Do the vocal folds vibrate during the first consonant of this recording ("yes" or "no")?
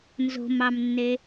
yes